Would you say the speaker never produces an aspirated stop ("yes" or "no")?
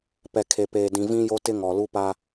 no